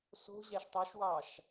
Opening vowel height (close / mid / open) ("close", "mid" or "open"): mid